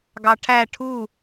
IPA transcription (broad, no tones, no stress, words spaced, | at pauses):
ɡɑʈʰæ ʈʰu